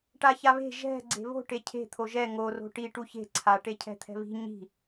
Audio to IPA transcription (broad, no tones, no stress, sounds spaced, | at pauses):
ʈ a ç a β e̤ ʒ ɛ̤ ɡ͡ǀ e̤ β o̤ ʈ e cʰ e̤ t̪ʰ o ʒ ɛ ŋ o r o̤ ʈ i ʈ u ç e̤ ǀʰ a ʈ e cʰ ɛ̤ t̪ʰ ɛ̤ β i̤ ɲ i̤